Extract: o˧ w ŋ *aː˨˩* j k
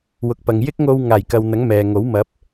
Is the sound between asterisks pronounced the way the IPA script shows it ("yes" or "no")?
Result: yes